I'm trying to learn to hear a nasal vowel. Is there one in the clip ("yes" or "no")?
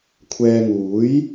no